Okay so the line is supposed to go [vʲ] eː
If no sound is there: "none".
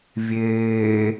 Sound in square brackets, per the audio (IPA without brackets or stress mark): vʲ